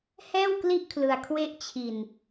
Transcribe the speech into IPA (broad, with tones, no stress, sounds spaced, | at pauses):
h ɛː˥˩ w k l i˥˩ ʔ kʰ l ɯ˧ a̯ kʰ w e˥˩ ʔ t͡ɕʰ i˧ n